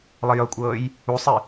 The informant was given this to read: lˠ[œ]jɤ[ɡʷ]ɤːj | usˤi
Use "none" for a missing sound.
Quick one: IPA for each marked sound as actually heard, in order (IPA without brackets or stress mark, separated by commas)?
ə, kʷʼ